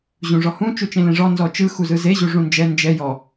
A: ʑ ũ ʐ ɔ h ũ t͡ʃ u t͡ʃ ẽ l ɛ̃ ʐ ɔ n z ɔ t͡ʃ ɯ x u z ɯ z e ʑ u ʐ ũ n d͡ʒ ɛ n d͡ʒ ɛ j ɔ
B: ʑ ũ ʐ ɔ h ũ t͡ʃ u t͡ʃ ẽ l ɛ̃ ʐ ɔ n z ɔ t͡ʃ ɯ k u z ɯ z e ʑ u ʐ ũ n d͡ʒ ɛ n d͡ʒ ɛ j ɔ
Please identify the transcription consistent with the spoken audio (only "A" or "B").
A